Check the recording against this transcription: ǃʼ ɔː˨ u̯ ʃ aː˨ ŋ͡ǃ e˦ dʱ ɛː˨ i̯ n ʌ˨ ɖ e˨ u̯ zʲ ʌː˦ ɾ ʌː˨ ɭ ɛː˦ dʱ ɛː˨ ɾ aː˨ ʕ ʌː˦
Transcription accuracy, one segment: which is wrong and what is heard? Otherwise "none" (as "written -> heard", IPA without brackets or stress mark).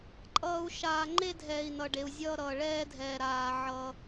ɔː˨ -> ʌː˨